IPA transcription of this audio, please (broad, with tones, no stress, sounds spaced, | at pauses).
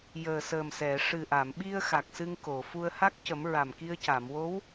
j əː˨˩ s əː˨˩ m s ɛ˨˩˨ ʂ ɨ˨˩ ʔ a˨˩˨ m ɓ i˧ ə̯ x a˨˩ k̚ s ɨ˧ ŋ k o˨˩˨ f u˧ ə̯ h a˦˥ k̚ c ə˨˩˦ m ɹ a˨˩ m k i˧ ə̯ c a˨˩˨ m w o˧˥ w